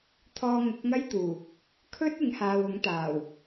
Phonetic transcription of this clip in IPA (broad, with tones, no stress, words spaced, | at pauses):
t̪ʰɔː˧ŋʊ˨˥k̚ŋɐ˥jt̪uː˨˩ | kʰɵ˥t̚ ɪ˨˥ŋhaː˨wʊ˨˥ŋt̪aː˨˩w